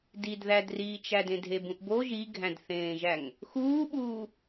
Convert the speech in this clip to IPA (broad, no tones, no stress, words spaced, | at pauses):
didðædriːt͡ʃæ dẽdʱebũʔbo ʒiɡʱæ̃dθẽːʒæŋ | xuːɓuː